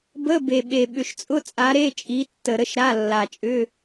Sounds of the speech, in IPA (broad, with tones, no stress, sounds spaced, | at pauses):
b ə˧˥˧ b e˨˩ ɓ e˨˩ ɓ ʏ˨˩ ʃ t͡sʼ ʊ˧˥˧ t͡sʼ a˨˦ ɾ e˧˥˧ t͡ʃʼ i˨˦ tː ə˨˩ ɾ ə˧˥˧ ʃ ɾ a˧˥˧ lː a˨˩ t͡ʃʼ ʏ˧˥˧